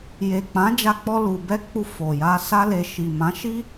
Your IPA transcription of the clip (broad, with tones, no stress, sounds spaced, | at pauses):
j e˨ k͡p ã˨˦ d͡ʒ a˦ k͡p ɔ˦ l u˧ b ɛ˦ k͡p u˧ f o˨ j a˧ s a˦ l e˧ ʃ i˨ m ã˨˦ ʃ i˦